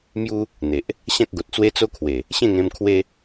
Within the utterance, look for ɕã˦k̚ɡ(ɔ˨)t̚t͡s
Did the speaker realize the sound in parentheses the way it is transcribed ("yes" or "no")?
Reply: no